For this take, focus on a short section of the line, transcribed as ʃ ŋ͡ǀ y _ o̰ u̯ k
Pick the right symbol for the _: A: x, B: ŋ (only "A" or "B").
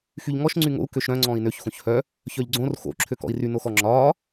B